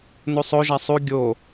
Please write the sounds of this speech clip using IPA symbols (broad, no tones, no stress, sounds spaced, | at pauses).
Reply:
n u sˤ o ʒ æ sˤ u ɡʲ o